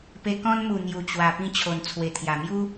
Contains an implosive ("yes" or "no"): no